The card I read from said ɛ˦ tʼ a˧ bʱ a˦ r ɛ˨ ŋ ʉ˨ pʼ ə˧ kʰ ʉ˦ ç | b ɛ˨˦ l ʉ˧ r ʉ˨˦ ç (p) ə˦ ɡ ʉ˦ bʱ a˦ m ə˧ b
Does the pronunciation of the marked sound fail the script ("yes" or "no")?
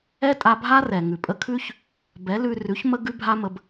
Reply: yes